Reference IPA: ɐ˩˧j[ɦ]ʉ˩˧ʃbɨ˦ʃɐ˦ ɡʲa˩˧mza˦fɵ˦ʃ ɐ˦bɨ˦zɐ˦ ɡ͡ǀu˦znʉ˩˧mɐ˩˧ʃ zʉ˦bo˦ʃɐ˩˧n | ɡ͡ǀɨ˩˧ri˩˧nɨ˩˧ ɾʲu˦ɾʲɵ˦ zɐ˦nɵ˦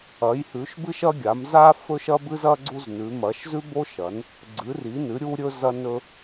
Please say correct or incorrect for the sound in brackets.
incorrect